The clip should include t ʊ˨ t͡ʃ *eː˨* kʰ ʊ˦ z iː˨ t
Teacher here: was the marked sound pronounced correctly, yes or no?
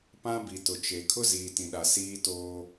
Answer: no